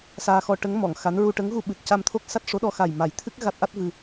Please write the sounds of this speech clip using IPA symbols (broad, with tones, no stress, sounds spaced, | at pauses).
s aː˧ x ɔ˧ ʈ ə˧˥ ŋ m ɔ˨˩˨ ŋ x a˧˥ n ɹ u˧ ʈ ə˧˥ ŋ ɣ u˧ ɓ ɨ˨˩ t̚ c a˧ m t̪ʰ o˦˥ k̚ s a˦˥ t̚ ʂ o˧˥ ɗ ɔ˧ x a˨˩ j m a˨˩˦ j t̪ʰ ɨ˦˥ k̚ ɣ a˦˥ t̚ ʔ a˦˥ t̚ v ɨ˧